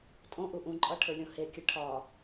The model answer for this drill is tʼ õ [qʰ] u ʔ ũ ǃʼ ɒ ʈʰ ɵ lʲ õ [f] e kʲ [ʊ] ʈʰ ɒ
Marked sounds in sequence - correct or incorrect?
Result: incorrect: ʔ, incorrect: h, incorrect: ɵ

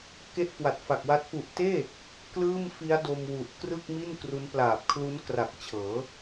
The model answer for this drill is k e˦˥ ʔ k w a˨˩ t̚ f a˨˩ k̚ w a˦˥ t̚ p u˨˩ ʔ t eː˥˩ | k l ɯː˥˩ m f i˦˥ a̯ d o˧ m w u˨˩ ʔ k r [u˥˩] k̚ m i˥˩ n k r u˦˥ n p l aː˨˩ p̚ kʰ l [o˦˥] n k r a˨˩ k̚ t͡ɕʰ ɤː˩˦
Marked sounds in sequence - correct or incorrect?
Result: incorrect: ɯ˥˩, incorrect: u˦˥

